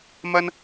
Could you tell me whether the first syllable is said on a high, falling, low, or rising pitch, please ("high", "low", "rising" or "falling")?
high